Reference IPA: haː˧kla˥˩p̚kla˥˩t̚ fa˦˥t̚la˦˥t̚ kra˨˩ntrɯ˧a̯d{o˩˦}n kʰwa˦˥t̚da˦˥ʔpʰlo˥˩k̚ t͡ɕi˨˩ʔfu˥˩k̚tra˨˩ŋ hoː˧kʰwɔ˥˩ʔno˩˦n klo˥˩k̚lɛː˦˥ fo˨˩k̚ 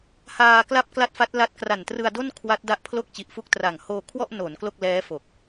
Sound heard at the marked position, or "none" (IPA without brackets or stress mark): o˥˩